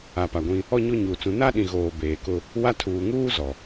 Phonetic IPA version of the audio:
a˨ p a˨ ɡʷ ĩ˦ | ɔ˦ ɲ o˦ ɲ uː˨ t͡s ũ˨˦ n a˦ ɗ ĩ˨ ɣ oː˨ b eː˨ k ʊ˦ | w a˦ tʰ uː˨ ŋ uː˦ z ɔ˨

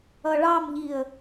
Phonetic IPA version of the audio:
ʌ ɭ ɑ m ʎ i ə̯

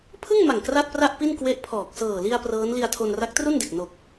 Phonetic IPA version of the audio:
pʰ ɯ˥˩ ŋ m a˨˩ ŋ k r a˥˩ t̚ p r a˥˩ ʔ p i˥˩ n k w e˦˥ ʔ pʰ ɔː˨˩ k̚ s ɤː˨˩ l i˧ a̯ p r ɤː˦˥ n l i˧ a̯ tʰ o˧ n r a˦˥ k̚ t r u˥˩ n d e˨˩ k̚ n o˨˩ k̚

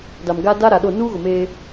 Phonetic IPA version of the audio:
d a˨ m ɡ a˦ d a˦ ɾ a˨ ɗ o˦˨ n uː˦ ɣ ʊ˨ m eː˦

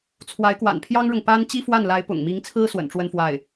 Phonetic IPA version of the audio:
t͡sʰ w a˧˥ ɪ̯ k w a̰˨˩ n pʰ j ɑ˥ ŋ ɻ ʊ˨ ŋ p a˥ n t͡ɕ i˥ f w a˥˩ n l a˧˥ ɪ̯ p ʊ̰˨˩ ŋ m i˧˥ ŋ t͡sʰ ɹ̩˥ s w ə̰˨˩ n ʈ͡ʂ w ə˥ n f w a˥˩ ɪ̯

